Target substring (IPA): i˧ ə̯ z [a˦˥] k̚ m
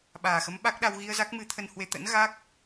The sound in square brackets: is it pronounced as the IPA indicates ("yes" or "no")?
yes